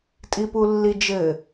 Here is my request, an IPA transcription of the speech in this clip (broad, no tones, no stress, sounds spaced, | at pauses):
tʼ i p u lː i d͡ʒ ɘ